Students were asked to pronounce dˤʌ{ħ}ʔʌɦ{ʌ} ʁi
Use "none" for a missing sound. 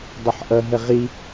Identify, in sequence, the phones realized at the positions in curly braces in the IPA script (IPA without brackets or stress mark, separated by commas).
ħ, ə